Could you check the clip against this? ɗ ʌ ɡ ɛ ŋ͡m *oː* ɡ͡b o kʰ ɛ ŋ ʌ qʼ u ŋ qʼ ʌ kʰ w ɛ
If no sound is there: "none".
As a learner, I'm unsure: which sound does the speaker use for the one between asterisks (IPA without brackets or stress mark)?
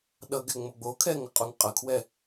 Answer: o